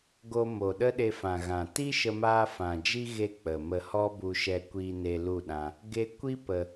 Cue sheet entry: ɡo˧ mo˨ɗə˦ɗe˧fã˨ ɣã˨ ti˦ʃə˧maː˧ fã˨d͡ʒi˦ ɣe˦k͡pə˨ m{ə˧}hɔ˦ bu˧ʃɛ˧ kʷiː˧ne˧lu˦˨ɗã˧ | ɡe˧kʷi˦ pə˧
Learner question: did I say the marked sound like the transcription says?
yes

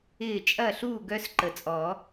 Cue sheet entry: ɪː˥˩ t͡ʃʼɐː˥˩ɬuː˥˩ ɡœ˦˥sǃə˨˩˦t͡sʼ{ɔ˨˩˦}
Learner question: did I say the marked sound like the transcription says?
yes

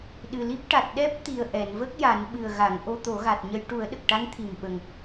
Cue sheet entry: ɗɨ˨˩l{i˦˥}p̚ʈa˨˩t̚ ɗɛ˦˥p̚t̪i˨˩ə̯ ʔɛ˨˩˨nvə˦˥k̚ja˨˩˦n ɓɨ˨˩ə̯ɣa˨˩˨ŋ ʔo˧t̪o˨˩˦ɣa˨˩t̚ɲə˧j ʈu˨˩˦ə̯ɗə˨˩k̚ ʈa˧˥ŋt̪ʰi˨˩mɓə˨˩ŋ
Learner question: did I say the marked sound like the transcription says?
yes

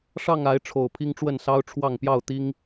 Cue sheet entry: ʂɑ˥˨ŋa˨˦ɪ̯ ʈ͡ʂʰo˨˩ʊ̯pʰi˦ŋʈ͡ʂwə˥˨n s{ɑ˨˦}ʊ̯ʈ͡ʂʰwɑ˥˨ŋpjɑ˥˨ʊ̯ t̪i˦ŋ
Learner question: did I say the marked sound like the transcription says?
no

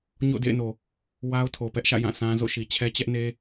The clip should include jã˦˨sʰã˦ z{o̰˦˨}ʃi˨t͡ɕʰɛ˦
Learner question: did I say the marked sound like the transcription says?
yes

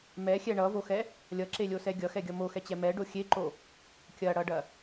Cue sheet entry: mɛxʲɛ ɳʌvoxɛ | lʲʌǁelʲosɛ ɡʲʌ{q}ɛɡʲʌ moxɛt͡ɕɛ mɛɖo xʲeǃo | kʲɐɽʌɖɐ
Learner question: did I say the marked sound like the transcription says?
no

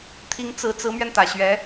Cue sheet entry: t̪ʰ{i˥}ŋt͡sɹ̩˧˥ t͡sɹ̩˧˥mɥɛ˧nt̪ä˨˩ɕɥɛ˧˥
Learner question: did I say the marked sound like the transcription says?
no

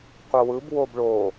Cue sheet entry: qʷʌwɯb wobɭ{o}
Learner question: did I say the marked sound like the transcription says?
yes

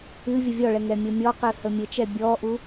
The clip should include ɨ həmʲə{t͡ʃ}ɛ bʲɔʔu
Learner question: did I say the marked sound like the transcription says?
yes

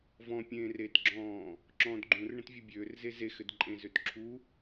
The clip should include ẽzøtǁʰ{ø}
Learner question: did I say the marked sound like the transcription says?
no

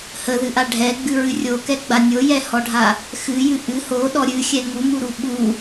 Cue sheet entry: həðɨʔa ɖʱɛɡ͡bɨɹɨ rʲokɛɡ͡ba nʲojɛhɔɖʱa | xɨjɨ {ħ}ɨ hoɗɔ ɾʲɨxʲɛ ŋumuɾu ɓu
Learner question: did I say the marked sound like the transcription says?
no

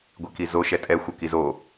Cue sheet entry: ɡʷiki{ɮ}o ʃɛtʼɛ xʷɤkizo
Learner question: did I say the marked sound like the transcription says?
no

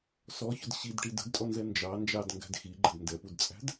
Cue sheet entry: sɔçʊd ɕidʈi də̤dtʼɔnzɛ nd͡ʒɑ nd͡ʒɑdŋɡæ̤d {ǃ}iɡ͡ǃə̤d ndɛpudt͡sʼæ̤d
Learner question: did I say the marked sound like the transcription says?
no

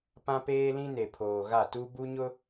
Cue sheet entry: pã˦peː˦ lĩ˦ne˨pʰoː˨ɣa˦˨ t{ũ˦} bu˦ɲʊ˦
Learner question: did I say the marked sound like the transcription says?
no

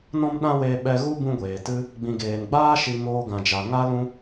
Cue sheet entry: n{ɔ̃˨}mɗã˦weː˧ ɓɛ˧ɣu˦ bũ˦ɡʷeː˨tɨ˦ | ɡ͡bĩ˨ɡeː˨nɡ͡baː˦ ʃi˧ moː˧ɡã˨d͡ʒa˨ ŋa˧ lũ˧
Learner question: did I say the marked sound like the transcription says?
no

